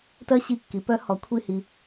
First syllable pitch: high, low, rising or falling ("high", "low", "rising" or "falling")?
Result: high